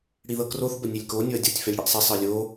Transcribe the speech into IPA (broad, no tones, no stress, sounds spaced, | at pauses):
ɽ i ð ɤ k r o θ b ə nʲ ɛ lʲ k o nʲ o ɐ̯ dʲ o tʲ f ɛ lʲ ɽ i ʔ sˤ i sˤ ɯ lʲ o